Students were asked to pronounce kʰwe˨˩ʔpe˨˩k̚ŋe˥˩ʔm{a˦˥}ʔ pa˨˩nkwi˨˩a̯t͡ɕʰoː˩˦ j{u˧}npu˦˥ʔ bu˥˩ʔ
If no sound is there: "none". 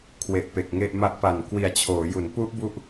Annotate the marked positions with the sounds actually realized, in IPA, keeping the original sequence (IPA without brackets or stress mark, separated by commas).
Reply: a˦˥, u˩˦